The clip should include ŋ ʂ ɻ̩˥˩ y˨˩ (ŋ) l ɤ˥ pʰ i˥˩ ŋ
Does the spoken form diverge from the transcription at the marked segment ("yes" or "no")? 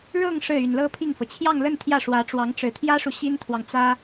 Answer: yes